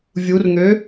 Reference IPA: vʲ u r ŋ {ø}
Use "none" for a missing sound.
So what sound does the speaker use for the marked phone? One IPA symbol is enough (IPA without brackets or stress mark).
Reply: ø